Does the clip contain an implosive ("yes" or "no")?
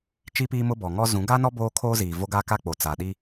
yes